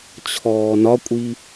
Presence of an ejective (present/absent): present